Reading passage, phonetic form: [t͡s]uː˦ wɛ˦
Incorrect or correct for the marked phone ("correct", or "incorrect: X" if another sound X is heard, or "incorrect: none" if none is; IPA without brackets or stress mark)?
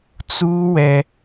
correct